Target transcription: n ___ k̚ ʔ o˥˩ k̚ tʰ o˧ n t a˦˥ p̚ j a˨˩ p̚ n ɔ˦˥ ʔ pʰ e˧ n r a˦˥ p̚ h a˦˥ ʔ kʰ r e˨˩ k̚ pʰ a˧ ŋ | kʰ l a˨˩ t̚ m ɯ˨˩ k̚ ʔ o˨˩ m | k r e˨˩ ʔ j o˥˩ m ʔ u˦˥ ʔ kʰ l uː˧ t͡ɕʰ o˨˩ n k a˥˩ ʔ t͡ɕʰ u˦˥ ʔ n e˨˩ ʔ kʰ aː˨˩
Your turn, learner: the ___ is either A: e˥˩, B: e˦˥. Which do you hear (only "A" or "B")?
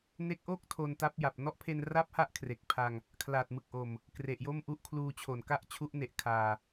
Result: B